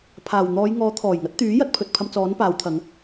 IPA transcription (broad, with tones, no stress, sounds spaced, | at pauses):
pʰ aː˨˩ w n̪ ɔː˨˧ j ŋ ɔː˨˥ t̪ʰ ɔː˨˩ j ŋ ɐ˨˥ t̚ t̪ yː˨˥ j ɐ˨˥ t̚ pʰ ɵ˨ t̚ pʰ ɐ˧ m t͡s ɔː˨˥ n p aː˨˧ w t̪ʰ ɐ˨˧ ŋ